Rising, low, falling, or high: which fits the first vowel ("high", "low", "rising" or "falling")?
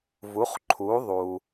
rising